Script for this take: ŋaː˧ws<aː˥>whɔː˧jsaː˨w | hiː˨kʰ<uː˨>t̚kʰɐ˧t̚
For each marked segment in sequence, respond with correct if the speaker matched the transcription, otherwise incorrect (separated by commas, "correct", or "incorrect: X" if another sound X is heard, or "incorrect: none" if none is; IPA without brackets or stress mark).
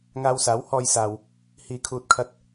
incorrect: aː˨˥, correct